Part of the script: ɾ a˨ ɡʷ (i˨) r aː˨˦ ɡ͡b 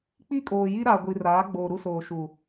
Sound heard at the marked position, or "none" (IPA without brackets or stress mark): i˨